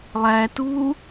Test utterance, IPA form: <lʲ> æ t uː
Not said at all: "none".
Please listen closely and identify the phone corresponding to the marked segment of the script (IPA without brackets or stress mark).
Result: lˠ